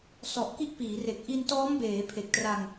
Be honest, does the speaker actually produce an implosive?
no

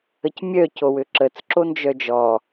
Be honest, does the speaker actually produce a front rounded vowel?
yes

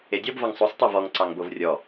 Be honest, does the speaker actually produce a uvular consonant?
no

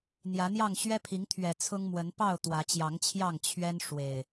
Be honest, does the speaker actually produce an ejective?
no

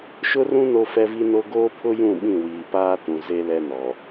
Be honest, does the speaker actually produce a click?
no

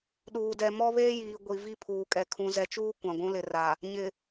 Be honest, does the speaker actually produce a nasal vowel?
yes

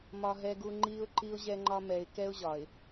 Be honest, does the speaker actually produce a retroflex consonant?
no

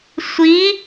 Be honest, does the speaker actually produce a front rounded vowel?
no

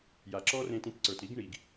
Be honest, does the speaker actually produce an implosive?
no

